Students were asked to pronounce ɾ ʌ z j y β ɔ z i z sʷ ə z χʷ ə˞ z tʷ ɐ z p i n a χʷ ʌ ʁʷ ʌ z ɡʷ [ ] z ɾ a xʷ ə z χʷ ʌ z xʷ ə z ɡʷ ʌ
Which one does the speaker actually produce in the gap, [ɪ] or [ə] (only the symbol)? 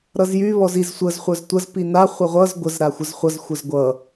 ə